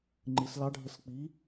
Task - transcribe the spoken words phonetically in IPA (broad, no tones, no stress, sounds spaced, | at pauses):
ŋ͡ǃ ɨ s l ɑ ɖʱ ə s k͡p i